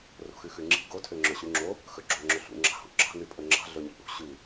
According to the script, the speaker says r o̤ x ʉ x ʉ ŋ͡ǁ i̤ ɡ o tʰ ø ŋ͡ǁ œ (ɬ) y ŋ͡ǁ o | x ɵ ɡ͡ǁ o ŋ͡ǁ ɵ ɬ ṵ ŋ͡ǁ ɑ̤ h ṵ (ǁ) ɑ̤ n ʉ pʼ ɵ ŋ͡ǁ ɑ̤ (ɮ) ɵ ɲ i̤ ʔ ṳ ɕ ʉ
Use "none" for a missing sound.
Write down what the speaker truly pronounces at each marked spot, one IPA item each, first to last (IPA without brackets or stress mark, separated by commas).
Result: ɕ, ǁ, ɮ